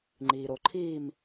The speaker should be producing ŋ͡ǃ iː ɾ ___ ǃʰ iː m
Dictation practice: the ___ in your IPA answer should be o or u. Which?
o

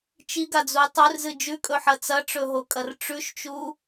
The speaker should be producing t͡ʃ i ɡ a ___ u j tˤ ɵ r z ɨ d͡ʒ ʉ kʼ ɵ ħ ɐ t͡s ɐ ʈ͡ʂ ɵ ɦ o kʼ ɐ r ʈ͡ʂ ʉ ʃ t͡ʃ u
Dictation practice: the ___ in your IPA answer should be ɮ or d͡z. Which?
d͡z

